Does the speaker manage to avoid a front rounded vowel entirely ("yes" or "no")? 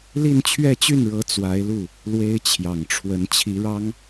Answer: no